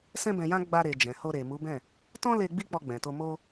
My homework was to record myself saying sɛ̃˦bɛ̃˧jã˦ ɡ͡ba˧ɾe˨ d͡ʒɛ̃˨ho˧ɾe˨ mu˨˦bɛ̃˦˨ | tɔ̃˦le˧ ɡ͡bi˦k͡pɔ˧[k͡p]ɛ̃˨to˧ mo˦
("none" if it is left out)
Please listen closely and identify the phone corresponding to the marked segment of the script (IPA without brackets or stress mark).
ɡ͡b